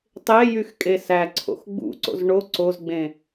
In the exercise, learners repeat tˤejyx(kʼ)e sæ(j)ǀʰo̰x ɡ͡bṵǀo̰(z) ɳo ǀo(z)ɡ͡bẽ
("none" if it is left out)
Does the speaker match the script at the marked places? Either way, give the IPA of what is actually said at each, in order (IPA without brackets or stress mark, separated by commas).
kʼ, none, z, z